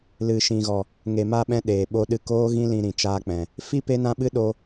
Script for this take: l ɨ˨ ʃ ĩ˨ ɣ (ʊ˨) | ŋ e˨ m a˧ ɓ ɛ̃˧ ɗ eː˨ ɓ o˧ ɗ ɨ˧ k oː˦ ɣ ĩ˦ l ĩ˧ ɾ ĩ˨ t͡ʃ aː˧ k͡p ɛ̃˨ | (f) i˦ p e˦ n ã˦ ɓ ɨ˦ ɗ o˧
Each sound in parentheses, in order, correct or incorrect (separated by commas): incorrect, correct